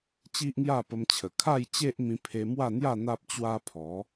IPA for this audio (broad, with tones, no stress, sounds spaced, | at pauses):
t͡ɕ i˦ ʔ ŋ j a˥˧ p ə˧ m t͡ɕʰ ə˨˩ kʰ a˥˧ j t͡ɕ e˦ ʔ m ĩ˧ pʰ e˧ m w a˥˧ n̪ j a˥˧ n̪ a˦ p̚ t͡ɕ w a˦ pʰ ɔ˨˦